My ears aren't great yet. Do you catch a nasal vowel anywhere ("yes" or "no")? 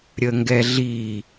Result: no